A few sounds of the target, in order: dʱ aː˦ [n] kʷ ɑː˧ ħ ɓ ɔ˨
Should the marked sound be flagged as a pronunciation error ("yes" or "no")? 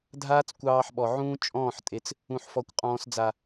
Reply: yes